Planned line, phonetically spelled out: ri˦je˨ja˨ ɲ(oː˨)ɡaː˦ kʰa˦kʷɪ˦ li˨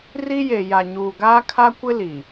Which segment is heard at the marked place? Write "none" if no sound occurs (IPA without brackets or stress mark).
uː˨